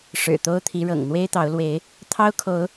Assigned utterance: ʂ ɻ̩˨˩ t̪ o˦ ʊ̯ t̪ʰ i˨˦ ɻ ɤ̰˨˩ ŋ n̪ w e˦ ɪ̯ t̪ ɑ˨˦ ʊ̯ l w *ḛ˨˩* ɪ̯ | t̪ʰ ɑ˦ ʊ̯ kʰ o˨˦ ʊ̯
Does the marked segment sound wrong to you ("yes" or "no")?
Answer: yes